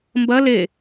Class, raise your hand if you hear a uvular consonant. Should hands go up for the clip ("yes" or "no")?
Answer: no